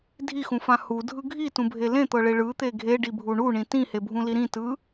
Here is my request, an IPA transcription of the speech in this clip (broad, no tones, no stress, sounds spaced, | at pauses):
dʱ i x ũ f ã h u dʱ ɯ ɡʱ i t ũ bʱ e l ẽ t̪ ɤ ɭ e ɭ ɯ t̪ e ɡʱ e ɖ i bʱ u ɳ u ɳ ĩ t ĩ h e bʱ ũ l i ɾ ĩ t ɯ